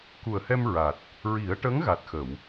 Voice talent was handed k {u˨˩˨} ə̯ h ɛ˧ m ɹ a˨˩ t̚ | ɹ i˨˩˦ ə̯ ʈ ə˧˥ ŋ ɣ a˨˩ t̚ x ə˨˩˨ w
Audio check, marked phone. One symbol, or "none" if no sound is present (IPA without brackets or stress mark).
u˨˩